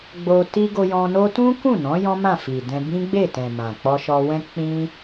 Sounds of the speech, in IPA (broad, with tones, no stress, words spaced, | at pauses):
ɡ͡bo˧ti˦ ɡo˧jɔ̃˧no˦ tũ˦ kũ˦˨nɔ̃˨˦ jɔ̃˦mã˦˨fi˨dɛ̃˧ bĩ˦ɡ͡be˦˨tɛ̃˨ mã˨k͡pɔ˧ʃɔ˧wɛ̃˦ k͡pĩ˦